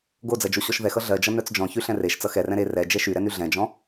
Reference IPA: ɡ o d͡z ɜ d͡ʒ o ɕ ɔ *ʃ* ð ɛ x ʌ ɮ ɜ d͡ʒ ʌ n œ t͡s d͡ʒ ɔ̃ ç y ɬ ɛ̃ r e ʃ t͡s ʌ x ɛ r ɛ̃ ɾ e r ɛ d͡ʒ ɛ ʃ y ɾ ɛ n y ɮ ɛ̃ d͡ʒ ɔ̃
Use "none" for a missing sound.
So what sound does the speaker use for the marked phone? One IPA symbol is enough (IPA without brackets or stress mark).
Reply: ʃ